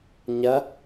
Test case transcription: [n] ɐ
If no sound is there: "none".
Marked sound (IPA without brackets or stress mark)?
ɲ